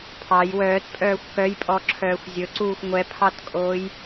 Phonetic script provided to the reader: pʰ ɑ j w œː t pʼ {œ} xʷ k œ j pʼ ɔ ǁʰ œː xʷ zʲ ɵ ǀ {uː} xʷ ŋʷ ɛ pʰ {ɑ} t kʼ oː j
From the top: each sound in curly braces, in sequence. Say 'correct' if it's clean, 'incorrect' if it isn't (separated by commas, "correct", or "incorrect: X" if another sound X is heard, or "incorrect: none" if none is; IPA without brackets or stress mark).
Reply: incorrect: œː, correct, correct